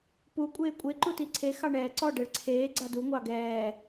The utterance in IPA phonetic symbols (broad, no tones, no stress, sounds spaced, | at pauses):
p u kʷʼ eː kʷʼ e ǃ u t i ǀʰ e x ɑ ɳ ɛː ǀ ɔ ɖ ɛ ɭ ǀʰ eː ɡ͡ǀ a d u ŋʷ ɑ ɡ ɛː